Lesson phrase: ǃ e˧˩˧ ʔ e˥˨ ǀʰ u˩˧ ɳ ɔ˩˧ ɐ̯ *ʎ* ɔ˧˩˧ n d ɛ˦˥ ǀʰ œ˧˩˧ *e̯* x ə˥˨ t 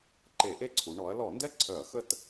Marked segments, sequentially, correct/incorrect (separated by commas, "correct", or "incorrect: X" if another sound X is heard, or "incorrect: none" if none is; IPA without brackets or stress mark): incorrect: l, incorrect: ɐ̯